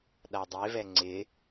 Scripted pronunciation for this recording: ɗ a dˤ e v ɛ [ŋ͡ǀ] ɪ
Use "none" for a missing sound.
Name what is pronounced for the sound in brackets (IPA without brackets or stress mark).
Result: ŋ͡ǀ